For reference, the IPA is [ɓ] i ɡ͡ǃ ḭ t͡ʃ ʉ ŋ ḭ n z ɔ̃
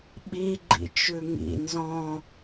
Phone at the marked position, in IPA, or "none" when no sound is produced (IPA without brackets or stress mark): ɓ